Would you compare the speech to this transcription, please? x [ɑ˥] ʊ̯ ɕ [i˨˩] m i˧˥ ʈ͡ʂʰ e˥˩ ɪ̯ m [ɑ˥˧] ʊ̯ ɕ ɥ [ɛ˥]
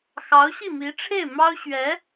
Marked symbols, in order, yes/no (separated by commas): no, no, no, no